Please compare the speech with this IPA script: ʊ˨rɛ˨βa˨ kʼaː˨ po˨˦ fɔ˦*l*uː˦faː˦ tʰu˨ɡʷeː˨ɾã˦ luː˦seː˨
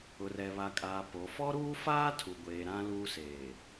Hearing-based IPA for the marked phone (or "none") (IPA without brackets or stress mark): ɾ